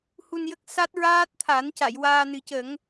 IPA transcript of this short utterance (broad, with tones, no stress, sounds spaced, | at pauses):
h u˧ n j ə˦˥ k̚ s a˦˥ t̚ ɹ aː˦˥ t̚ t̪ʰ a˨˩˦ n c a˨˩˨ j w aː˧ n ɨ˨˩˦ c ə˨˩˦ ŋ